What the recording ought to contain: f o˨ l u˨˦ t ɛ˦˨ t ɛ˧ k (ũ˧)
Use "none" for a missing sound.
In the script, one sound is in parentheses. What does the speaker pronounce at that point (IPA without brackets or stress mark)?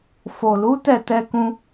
ũ˧